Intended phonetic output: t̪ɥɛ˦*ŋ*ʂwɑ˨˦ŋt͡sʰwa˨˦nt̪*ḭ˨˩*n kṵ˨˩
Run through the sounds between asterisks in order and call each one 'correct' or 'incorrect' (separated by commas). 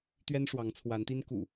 incorrect, incorrect